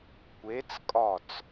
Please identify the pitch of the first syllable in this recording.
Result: rising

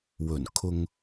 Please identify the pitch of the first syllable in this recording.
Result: low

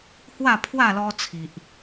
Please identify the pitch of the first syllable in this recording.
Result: falling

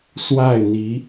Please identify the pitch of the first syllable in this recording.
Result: falling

